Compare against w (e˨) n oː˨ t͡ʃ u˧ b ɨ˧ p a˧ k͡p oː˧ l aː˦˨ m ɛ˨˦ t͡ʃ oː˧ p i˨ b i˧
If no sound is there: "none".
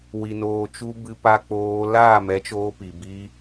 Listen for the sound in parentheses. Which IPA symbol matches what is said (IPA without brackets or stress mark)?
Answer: i˨